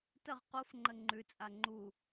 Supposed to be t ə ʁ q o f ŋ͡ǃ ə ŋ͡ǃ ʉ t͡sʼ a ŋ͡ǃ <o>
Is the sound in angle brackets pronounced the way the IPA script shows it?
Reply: no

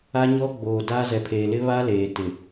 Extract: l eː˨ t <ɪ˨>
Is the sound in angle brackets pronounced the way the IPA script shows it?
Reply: yes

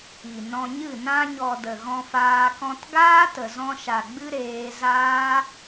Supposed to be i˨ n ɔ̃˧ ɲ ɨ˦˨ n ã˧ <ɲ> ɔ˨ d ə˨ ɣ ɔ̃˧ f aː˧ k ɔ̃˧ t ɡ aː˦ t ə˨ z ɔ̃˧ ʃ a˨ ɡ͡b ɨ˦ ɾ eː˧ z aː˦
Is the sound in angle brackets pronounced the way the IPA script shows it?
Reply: yes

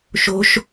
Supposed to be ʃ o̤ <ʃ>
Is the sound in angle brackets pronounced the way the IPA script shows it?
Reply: yes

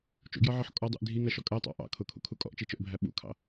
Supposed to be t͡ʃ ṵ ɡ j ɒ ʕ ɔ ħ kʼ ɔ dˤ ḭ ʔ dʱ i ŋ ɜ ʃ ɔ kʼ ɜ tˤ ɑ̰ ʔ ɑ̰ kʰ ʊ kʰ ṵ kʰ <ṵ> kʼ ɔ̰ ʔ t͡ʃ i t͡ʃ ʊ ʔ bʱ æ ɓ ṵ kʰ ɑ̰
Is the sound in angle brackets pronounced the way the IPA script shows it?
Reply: no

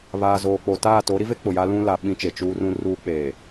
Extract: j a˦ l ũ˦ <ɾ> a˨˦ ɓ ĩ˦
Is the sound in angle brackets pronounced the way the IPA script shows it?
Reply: no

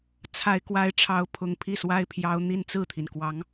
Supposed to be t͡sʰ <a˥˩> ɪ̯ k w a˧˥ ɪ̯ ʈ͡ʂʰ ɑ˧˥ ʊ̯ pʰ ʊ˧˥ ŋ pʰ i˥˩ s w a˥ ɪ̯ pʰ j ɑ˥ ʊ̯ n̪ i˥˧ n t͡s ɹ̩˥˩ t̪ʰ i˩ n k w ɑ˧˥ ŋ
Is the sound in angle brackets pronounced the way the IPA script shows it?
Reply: no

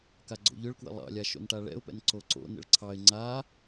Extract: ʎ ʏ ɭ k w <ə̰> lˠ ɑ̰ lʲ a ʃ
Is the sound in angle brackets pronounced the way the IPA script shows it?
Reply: yes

